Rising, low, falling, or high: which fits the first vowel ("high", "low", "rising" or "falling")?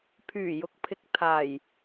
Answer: low